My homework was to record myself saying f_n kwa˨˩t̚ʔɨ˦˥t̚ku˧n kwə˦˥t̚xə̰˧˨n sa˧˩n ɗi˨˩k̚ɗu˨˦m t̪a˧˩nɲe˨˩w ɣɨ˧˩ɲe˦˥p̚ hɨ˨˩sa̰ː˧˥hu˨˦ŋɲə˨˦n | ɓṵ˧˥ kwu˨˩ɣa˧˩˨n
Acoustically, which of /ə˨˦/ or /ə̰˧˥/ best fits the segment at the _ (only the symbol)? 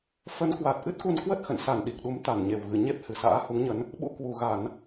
ə˨˦